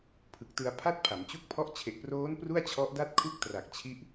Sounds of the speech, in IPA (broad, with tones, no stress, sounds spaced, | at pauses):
pʰ ɯ˨˩ k̚ t ɯ˧ a̯ pʰ a˥˩ t̚ pʰ a˩˦ m t͡ɕ u˥˩ k̚ pʰ ɔ˥˩ ʔ t͡ɕʰ e˨˩ ʔ p r oː˦˥ n p r u˥˩ a̯ t͡ɕʰ ɔ˦˥ ʔ d a˦˥ t̚ kʰ u˦˥ k̚ t r a˨˩ k̚ t͡ɕʰ i˦˥ ʔ